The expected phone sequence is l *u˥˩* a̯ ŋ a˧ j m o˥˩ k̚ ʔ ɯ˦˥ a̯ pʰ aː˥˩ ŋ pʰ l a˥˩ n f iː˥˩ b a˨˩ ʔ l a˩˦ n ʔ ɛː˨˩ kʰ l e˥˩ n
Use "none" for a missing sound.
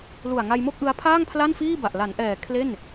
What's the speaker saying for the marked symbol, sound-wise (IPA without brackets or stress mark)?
u˨˩